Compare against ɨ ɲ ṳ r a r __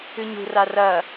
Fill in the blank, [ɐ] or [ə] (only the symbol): ɐ